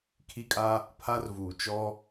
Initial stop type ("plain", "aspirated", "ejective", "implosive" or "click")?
aspirated